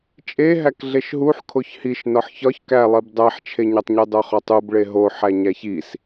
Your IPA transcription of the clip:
t͡ʃʼ e ɦ æ k ɮ e ʃ ɦ u ħ kʰ o ç h i ʃ n ɒ ħ ç ɒ ç k æ lˠ i b dˤ æ ħ t͡ʃʰ e ɲ ɒ tˤ ɲ e dˤ o χ ɒ tˤ u b ɭ e ɦ o ħ æ ɲ æ ç i s

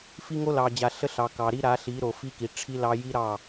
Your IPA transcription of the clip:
f i˦ ŋ o˦ l ɑ˨ d͡ʑ a˨ ɬ ə˦ ɬ ɑ˨ k ɑ˨ ɾ i˦ ɾ a˨˦ ɬ i˨˦ ɾ o˨ f i˦ k i˨ ʈ͡ʂʰ i˦ l ɑ˦ j i˦ ɾ ɑ˦˨

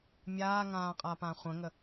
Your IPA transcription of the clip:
mʲ aː ŋ ãː qʼ a p ã χʷ ə̃ ŋ ə

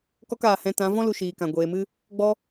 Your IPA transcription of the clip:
k ɔ˦ k aː˨ h ɛ̃˧ t ã˨˦ v ɔ̃˦ l u˨ ʃ iː˨ k ã˨ ɡʷ eː˨ m ɨ˦ | ɡ͡b ɔ˧

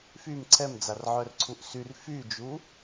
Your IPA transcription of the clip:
f y m ǀʰ ɛ m d͡z a r ʕ œ r ǀʰ u ʔ s y r f y d͡ʒ u

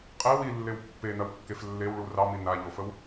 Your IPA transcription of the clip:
qʼ e w i lː e w pː e n ɐ w kː e f lː e w ɭ u r ɑ m i n a ʎ o f ə w

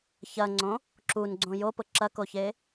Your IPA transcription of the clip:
ç ɐ ŋ͡ǀ õ | ǁ u n ɡ͡ǀ õ j o p ʊ ǁ ɐ k o ç e

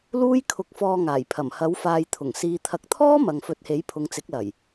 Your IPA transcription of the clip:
l uː˥ j kʰ ʊ˧ k̚ f ɔː˧ ŋ aː˨˩ j pʰ ɐ˨˩ m h ɐ˨˥ w f aː˧ j t̪ʰ ʊ˨˩ ŋ s iː˨ t̪ʰ ɐ˨˥ k̚ t̪ʰ ɔː˥ m ɐ˨ ŋ f ɵ˨˥ t̚ h e˨˥ j pʰ ʊ˨˧ ŋ t͡s ɪ˨˥ k̚ l ɐ˨˩ j

